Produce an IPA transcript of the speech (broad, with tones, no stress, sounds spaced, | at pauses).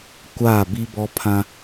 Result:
kʷ aː˦˨ b i˦ b ɔ˦ pʰ ã˦